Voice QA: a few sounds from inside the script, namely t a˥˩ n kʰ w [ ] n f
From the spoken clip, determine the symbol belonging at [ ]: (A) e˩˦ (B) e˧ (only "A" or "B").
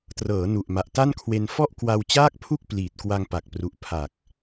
B